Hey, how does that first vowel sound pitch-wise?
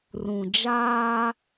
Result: low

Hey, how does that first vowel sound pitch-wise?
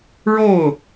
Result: falling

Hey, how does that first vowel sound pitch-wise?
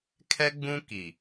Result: high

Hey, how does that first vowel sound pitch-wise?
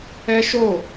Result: high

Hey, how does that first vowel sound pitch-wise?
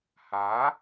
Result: rising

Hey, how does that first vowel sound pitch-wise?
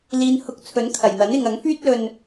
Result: low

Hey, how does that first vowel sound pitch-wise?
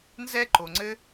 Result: high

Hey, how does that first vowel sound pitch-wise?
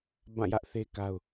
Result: falling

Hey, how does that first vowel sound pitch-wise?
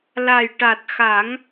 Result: low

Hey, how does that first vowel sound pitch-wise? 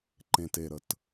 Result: low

